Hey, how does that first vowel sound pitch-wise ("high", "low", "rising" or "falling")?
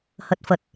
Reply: low